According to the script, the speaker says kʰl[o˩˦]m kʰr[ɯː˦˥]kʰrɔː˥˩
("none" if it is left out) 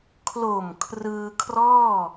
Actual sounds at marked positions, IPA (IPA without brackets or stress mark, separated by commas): o˨˩, ɯː˧